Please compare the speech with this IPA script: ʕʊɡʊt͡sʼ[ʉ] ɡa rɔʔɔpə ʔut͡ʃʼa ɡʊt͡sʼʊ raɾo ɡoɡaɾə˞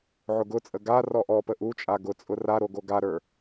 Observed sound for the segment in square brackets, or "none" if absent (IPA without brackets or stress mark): ə